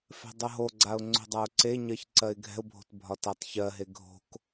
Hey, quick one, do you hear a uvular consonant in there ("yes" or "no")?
no